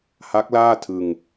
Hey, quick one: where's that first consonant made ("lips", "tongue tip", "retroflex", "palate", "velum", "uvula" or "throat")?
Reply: throat